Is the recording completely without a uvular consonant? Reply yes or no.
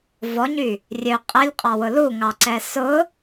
no